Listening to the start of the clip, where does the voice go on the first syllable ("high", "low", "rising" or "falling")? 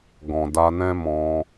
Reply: low